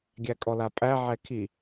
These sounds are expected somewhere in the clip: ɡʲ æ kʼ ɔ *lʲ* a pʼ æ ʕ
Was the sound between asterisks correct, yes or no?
no